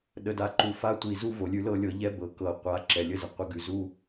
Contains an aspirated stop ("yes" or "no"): no